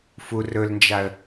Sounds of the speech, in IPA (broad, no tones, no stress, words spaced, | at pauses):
fu rɵlnd͡ʒaə̯